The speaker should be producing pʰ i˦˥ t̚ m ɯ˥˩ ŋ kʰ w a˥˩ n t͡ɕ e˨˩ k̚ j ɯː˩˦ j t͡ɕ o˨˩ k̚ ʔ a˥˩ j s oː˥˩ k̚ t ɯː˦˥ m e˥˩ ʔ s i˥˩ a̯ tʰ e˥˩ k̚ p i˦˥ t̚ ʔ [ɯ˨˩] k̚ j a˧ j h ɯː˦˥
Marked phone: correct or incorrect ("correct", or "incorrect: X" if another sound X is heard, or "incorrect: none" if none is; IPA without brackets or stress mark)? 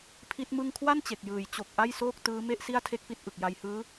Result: correct